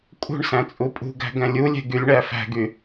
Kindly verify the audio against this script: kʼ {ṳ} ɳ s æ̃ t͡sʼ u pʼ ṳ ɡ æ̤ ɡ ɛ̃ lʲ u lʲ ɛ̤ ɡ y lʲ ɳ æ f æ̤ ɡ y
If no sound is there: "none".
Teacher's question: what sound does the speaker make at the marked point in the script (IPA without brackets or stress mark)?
ṳ